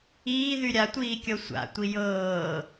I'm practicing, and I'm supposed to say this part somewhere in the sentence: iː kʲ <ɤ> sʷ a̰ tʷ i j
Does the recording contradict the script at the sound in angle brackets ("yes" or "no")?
no